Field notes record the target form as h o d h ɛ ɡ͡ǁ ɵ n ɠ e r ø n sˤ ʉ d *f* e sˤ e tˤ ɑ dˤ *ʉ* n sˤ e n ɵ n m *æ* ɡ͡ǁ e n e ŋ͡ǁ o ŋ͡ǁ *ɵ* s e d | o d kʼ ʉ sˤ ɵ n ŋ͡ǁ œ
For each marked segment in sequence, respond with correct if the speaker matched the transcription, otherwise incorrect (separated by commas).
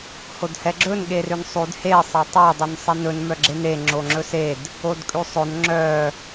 incorrect, incorrect, incorrect, correct